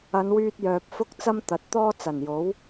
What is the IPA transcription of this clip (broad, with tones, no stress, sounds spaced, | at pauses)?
ɐ˨˧ n w yː˧ t̚ j œː˨ p̚ f ʊ˥ k̚ t͡s ɐ˥ m t̪ ɐ˨˥ t̚ t̪ ɔː˥ t͡s ɐ˨˩ n j o˨˥ w